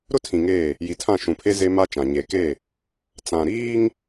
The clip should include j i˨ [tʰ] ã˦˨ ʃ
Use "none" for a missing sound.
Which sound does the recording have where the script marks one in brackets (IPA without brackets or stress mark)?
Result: tʰ